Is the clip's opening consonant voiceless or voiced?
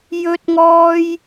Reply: voiced